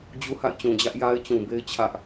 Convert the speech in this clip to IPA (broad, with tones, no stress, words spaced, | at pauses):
d͡ʑu˦ha̰˦˨ɪ̯t͡ɕũ˨ d͡ʑä˦ʔja˦ɪ̯t͡ɕũ˨be˦ɪ̯ t͡ɕʰä˦ʔ